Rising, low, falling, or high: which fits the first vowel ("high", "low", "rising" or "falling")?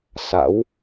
rising